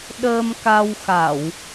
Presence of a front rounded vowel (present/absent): absent